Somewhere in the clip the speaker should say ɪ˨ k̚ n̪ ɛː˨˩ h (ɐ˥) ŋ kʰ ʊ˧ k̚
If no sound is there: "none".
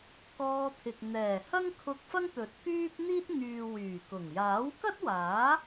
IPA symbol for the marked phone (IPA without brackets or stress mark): ɐ˥